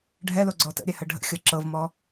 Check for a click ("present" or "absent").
present